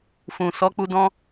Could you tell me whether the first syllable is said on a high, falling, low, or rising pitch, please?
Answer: low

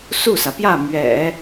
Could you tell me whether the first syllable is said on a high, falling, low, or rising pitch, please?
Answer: falling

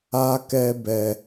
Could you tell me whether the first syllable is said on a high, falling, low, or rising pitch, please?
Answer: high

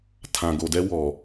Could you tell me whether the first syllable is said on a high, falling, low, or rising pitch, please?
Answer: low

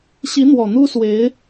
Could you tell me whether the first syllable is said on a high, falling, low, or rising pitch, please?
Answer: rising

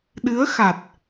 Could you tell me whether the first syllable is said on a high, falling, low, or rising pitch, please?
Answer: rising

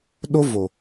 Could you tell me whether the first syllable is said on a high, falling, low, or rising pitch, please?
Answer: high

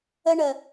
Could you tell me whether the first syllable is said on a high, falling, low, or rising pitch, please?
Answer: high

